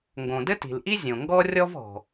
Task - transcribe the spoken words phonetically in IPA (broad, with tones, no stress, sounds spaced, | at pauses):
ŋ ɡ õ˩ d ɘ˥ t i̤˩ l ʔ i˥ zʲ õ˩ ŋ ɡ ɔ˥ rʲ ɔ˥ v ɔ̤˩